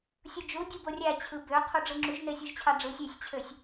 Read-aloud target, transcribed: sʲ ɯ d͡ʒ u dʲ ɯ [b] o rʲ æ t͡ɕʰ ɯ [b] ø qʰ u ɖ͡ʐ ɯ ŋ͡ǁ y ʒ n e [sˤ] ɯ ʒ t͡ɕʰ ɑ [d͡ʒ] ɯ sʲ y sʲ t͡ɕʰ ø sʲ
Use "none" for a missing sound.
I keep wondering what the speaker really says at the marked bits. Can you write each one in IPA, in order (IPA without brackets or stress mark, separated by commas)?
b, b, sʲ, ɖ͡ʐ